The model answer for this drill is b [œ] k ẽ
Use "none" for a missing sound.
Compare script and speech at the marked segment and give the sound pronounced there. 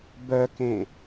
œ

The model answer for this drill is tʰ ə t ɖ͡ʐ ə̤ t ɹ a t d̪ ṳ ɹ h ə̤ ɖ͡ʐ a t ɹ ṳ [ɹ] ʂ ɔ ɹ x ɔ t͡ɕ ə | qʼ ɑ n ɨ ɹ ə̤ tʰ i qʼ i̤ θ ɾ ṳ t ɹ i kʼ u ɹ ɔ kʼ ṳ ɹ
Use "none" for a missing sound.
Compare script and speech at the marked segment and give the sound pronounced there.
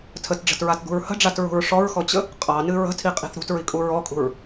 ɹ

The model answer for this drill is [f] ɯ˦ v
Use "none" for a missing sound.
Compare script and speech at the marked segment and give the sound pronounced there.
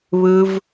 β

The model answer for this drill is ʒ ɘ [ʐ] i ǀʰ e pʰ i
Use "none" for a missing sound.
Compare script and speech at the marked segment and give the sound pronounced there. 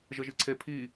ʒ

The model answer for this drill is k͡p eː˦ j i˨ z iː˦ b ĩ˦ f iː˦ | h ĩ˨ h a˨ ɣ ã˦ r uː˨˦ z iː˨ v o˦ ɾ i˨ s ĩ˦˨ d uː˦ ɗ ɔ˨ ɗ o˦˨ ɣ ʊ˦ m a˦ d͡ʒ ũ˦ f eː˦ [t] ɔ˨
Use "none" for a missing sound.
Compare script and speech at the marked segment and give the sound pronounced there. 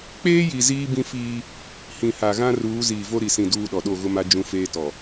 t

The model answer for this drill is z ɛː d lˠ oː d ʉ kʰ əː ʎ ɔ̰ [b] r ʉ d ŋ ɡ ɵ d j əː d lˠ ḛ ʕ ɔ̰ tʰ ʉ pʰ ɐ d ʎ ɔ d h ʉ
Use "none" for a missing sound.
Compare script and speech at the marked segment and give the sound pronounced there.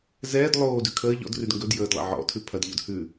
d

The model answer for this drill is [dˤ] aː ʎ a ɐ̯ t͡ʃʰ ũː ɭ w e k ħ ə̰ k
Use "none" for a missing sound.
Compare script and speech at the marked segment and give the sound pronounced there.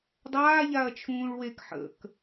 dˤ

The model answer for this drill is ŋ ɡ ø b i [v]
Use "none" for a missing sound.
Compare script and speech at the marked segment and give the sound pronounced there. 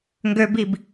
b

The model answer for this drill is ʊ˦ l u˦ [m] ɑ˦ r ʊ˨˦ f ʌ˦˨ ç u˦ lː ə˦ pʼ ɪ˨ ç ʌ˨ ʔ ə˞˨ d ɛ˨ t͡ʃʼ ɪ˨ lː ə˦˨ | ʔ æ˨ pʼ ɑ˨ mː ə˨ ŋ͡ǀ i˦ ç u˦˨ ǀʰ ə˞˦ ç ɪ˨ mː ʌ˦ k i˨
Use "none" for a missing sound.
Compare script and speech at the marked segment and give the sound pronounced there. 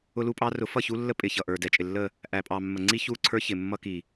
pʼ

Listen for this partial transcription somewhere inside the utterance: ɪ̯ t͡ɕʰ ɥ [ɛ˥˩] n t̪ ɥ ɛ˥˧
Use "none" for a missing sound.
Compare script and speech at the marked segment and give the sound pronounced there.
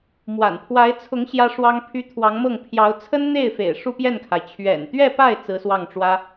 ɛ̰˨˩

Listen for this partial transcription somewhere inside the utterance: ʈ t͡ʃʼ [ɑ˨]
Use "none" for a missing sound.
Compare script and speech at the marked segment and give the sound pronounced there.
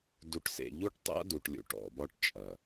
ɐ˨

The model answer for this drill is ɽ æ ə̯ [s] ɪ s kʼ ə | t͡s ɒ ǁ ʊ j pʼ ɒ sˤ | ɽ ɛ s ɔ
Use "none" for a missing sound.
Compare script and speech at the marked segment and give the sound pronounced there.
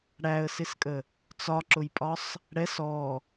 s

